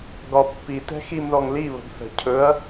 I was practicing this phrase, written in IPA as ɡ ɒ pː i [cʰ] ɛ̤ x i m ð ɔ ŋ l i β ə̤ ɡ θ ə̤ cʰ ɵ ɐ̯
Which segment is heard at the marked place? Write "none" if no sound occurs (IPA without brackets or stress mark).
t